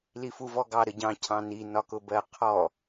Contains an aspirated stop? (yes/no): yes